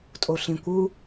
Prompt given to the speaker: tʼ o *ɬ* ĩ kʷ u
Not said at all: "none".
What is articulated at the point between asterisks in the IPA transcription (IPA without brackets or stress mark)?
ɬ